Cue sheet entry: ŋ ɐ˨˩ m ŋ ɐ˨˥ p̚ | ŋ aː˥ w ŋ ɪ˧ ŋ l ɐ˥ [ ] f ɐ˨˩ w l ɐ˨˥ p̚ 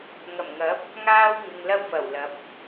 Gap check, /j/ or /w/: w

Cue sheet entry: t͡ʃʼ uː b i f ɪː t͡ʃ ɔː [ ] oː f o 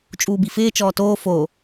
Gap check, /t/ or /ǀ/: t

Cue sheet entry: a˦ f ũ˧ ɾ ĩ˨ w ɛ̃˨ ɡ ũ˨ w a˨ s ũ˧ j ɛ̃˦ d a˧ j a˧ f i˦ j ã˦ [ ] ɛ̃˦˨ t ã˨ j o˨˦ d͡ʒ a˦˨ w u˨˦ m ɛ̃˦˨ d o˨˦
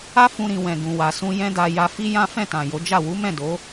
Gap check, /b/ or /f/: f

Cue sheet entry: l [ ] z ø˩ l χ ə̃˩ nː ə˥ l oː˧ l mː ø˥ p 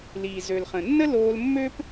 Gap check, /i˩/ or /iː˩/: iː˩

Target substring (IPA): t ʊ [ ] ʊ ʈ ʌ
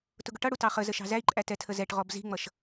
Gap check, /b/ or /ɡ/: ɡ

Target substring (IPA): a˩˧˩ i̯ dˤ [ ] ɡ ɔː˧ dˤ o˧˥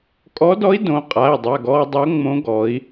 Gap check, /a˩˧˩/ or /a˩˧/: a˩˧˩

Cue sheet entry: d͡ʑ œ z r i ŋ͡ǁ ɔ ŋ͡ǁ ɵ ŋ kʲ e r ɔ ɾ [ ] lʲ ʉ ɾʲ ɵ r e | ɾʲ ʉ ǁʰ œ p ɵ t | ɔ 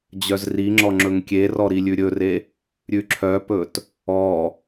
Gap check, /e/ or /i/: i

